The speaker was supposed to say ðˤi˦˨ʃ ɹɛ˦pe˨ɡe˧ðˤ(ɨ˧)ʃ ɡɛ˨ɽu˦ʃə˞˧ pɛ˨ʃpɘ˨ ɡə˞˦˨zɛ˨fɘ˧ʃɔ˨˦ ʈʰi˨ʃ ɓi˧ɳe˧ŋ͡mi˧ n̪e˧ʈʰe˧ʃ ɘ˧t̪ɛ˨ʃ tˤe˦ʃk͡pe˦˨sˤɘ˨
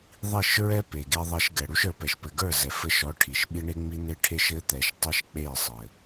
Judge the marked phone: incorrect: ɛ˧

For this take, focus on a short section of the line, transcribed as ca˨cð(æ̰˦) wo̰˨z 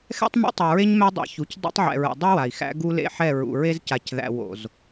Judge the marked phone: incorrect: æ̰˨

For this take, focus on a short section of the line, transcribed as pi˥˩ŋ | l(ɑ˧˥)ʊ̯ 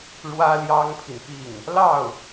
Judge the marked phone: incorrect: ɑ˥˩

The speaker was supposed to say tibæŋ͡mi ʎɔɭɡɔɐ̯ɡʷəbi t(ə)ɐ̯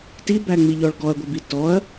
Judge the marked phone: incorrect: ɔ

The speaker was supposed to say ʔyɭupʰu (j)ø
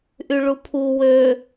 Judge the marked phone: incorrect: w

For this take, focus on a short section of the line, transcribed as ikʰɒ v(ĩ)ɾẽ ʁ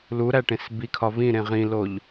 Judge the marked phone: correct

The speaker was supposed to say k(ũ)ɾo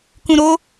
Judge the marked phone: correct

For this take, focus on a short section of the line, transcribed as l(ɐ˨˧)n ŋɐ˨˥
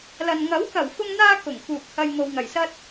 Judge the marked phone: incorrect: ɐ˨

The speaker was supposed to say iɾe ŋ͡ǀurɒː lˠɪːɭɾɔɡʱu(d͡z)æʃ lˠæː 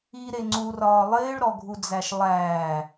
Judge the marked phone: correct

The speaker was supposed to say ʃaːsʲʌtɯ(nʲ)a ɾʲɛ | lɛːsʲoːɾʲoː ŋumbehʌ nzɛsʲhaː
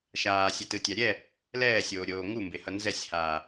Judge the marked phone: incorrect: tʲ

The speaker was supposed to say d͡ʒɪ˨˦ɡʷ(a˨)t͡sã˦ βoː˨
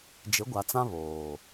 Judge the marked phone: correct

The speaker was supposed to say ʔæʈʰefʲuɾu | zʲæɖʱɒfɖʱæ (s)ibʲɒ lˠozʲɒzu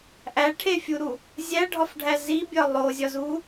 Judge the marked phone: incorrect: z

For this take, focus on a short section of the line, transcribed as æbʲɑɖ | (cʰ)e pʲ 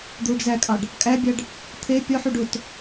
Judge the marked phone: incorrect: t̪ʰ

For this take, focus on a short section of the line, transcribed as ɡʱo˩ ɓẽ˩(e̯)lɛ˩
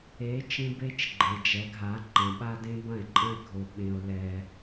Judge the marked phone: incorrect: o̯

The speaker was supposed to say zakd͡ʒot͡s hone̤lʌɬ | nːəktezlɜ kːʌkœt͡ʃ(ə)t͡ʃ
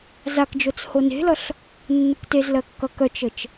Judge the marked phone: correct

